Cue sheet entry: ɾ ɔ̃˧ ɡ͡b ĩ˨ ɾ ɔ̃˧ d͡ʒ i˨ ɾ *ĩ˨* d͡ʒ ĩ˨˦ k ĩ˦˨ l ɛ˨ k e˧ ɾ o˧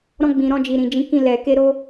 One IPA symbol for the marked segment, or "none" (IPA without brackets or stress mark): ĩ˨